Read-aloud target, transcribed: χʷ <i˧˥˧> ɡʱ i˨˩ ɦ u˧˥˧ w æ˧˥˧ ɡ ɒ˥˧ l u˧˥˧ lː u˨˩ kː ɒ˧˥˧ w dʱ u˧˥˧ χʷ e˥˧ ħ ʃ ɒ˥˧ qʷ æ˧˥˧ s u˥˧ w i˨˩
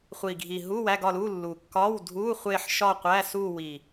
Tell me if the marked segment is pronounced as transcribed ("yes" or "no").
no